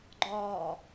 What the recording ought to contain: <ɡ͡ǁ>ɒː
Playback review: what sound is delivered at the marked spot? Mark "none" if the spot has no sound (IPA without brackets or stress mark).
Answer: ɡ͡ǃ